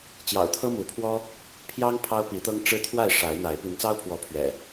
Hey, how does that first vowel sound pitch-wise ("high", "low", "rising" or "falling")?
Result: low